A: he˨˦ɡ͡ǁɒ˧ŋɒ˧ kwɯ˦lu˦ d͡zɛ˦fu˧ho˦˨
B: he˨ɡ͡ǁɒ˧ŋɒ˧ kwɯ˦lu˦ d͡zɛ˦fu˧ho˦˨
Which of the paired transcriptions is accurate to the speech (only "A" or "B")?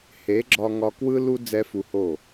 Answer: A